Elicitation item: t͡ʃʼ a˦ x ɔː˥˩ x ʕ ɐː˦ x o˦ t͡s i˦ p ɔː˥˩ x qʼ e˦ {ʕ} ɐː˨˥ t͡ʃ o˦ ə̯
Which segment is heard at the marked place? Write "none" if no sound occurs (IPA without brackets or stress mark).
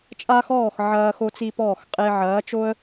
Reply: ʕ